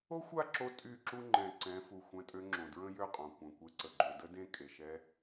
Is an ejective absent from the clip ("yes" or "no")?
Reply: no